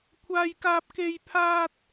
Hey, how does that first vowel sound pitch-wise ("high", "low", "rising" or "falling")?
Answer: high